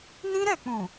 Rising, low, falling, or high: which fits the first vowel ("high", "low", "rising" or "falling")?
high